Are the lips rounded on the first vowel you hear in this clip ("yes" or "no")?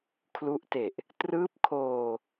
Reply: yes